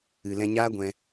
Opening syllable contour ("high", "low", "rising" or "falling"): low